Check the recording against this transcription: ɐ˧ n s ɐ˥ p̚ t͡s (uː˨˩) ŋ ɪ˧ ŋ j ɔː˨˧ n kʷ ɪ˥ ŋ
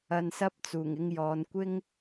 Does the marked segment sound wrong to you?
no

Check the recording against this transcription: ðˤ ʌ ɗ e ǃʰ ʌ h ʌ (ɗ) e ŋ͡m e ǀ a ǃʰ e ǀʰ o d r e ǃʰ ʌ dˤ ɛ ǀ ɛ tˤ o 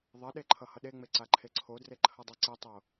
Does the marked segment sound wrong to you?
no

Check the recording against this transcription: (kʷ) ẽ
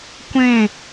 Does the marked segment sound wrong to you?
no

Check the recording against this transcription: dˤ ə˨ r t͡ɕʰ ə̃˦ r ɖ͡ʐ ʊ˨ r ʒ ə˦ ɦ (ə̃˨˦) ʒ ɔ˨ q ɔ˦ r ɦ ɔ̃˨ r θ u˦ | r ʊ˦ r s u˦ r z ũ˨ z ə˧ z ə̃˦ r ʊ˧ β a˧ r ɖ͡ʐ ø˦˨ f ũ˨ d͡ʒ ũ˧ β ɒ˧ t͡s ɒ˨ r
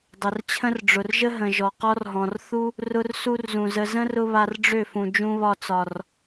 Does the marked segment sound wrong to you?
yes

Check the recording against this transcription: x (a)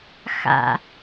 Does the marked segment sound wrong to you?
yes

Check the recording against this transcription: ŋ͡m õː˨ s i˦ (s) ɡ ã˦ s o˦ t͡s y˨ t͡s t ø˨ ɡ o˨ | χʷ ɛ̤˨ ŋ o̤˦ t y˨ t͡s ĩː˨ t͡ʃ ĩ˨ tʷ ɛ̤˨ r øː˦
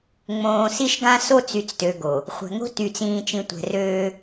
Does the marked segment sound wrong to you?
yes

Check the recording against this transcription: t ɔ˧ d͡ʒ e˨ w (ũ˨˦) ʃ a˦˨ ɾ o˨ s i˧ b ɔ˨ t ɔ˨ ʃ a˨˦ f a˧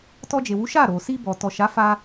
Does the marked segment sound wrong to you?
yes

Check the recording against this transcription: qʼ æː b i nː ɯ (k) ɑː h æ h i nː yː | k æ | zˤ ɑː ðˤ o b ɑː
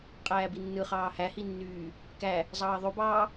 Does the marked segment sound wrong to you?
yes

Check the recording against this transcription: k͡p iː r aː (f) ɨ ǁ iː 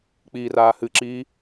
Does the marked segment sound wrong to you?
yes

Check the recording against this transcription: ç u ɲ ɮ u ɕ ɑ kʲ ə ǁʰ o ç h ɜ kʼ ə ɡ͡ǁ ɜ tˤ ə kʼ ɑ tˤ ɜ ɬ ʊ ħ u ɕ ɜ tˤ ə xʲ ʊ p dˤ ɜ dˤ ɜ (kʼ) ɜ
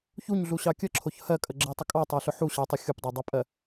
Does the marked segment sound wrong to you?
yes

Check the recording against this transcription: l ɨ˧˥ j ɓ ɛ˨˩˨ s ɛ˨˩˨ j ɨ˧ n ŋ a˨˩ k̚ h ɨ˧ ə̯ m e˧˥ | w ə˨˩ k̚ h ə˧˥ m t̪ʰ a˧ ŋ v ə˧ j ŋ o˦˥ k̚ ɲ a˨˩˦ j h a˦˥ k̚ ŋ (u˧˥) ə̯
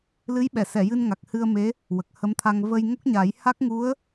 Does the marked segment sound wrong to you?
no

